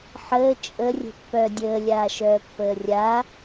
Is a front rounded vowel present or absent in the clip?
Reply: present